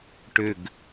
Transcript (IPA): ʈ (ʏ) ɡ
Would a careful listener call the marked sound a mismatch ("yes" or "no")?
no